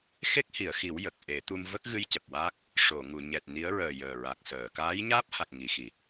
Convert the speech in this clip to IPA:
xe˦˥k̚hi˨˩˨ə̯xi˨˩˦w jə˨˩k̚ ʔe˨˩˦t̪u˧m və˦˥k̚ɣɨ˧j cə˨˩k̚waː˦˥k̚ | ʂo˨˩˨ŋu˨˩˨ ɲɛ˨˩t̚ni˧˥ə̯ɹəː˨˩ jəː˨˩ɹa˨˩k̚səː˨˩˨ kaː˧˥jɲaː˦˥p̚ha˨˩k̚ ŋi˨˩˦xi˨˩

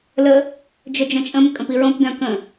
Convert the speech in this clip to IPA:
lə | d͡ʒœd͡ʒœ̃t͡ʃʼə̃m kʼə̃piɹõp dœ̃kə̃

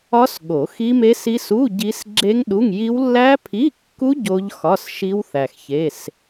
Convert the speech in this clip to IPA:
ɒ˦˥s ɠo˨˩˦xi˦˥me˦˥s i˦˥s u˧˥˧ ɟi˦˥s ɡ͡ǁe˦˥ŋɗu˧˥˧ŋji˦˥w lːæ˦˥pʰi˧˥˧kːu˦˥ ɟo˦˥ʎ xɒ˧˥˧sʃi˦˥wθæ˨x çe˧˥˧s

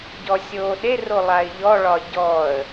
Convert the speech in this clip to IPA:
ɟɔsʲoːɗero lˠaɪ̯ʎɔɭɒ ɟɔə̯

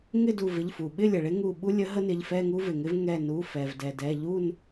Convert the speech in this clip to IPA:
ŋɪ˥˨du˧˩ vɪ˩˧˩ʎfu˩ ɓɪ˥˨lʲə˩ɭɪ˦ ŋu˧˩ ɓu˦lʲə˨˥ ɦə˦nɪ˩˧˩ʎfɛ˥˨ ŋu˦vɪ˩ŋɪ˦v ŋɛ˧˩ nu˩˧˩fɛ˩v dɛ˩dɛ˩˧˩ ʎu˥˨n

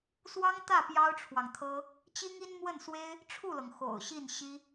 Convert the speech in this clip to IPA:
swɑ˥ŋt̪ä˥˩ pjɑ˥ʊ̯ʈ͡ʂʰwɑ˨ŋt̪ʰɤ˥ | t͡ɕi˥ŋi˥nmwə˥˩nswe˥ɪ̯ | ʈ͡ʂʰu˥˩lɤ˩ŋ xo̰˨˩ʊ̯ɕi˥˩n ɕi˥

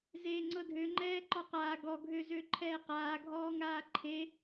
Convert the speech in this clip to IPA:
zeːŋ͡ǀɤdʱø ŋ͡ǃɛːǃɔqaː ɡɔ ɡʱøzøǃʰɛːqaː ɡʱɔːŋaːǃʰe

